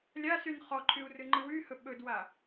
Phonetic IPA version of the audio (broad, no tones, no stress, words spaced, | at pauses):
lʲasyn χɔǃʰyu̯ rɨŋ͡ǃɨwyhɵ ɓɵdwa